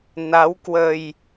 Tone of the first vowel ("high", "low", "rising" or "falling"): rising